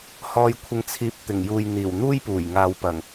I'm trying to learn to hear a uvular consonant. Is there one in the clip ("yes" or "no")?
no